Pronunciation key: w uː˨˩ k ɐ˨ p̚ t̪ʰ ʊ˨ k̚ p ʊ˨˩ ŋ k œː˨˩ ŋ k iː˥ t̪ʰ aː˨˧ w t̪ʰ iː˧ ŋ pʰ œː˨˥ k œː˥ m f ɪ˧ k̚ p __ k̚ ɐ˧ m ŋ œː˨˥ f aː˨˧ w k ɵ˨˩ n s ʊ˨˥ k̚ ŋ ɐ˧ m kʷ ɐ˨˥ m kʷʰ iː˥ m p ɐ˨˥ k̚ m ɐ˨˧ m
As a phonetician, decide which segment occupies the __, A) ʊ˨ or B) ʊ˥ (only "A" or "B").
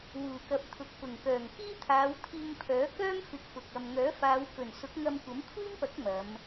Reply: A